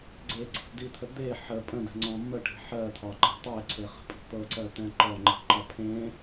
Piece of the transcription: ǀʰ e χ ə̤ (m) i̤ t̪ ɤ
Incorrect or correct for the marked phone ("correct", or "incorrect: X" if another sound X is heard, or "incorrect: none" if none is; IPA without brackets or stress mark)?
incorrect: pʼ